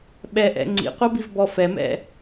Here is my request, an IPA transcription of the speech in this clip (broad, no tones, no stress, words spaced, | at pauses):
ɓɛʔɛ̰ ŋ͡ǀḭqʷʌbivbɔ fɛmɛ̰